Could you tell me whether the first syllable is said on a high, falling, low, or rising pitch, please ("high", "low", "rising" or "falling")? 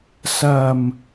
low